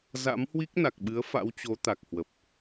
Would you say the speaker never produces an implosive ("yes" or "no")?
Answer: no